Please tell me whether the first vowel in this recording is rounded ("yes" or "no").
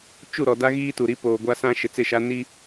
yes